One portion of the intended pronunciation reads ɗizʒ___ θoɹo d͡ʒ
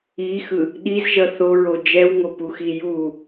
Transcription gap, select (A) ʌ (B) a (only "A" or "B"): A